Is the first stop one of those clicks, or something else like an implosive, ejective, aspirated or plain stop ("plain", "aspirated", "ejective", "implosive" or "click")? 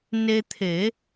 aspirated